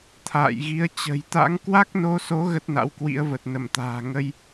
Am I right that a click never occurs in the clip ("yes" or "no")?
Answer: yes